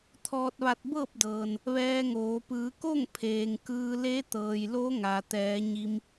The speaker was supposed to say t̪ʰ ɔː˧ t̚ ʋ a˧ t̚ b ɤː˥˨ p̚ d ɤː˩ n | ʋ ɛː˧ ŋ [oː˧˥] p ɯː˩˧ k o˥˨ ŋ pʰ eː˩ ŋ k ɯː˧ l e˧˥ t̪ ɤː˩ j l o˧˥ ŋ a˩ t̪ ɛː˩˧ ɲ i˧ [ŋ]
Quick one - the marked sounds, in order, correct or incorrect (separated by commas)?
incorrect, incorrect